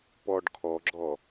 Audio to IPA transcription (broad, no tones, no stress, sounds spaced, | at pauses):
p ɔ ɖ kʰ ɔ ɡ͡ǁ ɔ